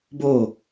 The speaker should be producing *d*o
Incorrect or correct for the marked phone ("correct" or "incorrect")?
incorrect